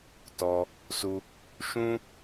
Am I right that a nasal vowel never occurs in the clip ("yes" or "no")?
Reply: no